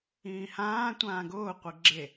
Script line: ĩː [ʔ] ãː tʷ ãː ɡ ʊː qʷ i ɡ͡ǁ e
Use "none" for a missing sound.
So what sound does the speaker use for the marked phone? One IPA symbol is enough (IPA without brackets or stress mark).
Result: h